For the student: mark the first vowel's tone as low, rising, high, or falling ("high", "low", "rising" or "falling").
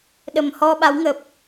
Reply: low